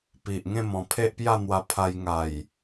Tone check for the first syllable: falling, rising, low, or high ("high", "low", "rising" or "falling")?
low